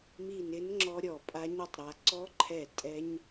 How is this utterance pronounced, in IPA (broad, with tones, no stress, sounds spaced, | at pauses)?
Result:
m i˧˩ n ɪ˨˥ n ŋ͡ǁ ɔ˧ ɾʲ ɔ˧˩ pʼ a˦˥ ɲ ʊ˦˥ tˤ ɾ a˩˧ ǀ ɔ˦˥ ǃʰ ɛ˧˩ tʼ ɛ˦˥ ɲ